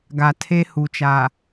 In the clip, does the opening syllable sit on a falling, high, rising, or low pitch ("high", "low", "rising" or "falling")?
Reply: low